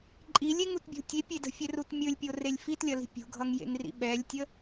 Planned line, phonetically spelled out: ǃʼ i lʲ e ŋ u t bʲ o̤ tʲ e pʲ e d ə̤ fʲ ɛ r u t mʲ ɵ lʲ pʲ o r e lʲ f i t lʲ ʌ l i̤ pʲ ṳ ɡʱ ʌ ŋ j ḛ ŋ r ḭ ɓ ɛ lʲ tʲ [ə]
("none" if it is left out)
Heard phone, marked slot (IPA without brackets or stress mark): ə